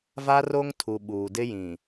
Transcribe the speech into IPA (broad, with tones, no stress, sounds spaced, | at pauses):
v a˦ r o˦ ŋ tʰ u˨ ɓ uː˨ d ɪ˦ j ĩ˨